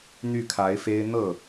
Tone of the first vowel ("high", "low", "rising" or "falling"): falling